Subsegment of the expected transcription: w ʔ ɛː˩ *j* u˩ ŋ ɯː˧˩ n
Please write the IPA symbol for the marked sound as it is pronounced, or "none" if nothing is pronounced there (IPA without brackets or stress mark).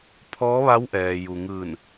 j